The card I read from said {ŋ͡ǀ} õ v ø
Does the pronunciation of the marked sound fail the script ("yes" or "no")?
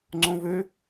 no